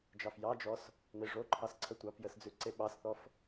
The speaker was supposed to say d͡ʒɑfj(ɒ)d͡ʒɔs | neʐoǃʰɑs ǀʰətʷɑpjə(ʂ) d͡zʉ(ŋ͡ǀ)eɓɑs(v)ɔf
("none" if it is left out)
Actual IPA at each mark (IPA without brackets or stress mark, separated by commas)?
ɑ, s, ǀ, θ